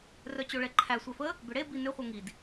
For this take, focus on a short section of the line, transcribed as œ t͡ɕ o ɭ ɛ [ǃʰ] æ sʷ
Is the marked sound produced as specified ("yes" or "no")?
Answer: yes